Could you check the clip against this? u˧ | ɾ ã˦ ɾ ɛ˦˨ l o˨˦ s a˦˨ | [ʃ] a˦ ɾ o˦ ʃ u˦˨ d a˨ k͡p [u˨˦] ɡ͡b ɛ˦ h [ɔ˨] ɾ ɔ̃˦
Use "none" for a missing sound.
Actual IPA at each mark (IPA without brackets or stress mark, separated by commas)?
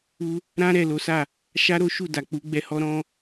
ʃ, u˨˦, ɔ˦